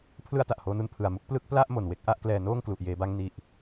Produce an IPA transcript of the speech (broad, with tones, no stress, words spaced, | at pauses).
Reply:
pʰlɯ˥˩a̯ta˨˩ʔhoː˧nu˦˥n pʰɯ˨˩a̯mu˦˥k̚ plɯ˥˩k̚ pla˥˩ʔ mo˨˩nwe˥˩k̚ʔa˥˩ʔklɛː˧ noː˥˩ŋklu˨˩ʔjeː˧ba˦˥ŋ ni˨˩ʔ